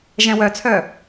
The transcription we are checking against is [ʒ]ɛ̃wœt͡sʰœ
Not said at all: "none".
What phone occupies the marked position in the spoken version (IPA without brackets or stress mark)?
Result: ʒ